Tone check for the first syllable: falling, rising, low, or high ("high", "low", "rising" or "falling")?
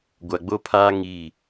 low